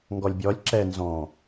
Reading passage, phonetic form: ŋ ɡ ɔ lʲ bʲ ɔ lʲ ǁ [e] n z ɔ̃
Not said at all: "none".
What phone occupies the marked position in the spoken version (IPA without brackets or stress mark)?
ɛ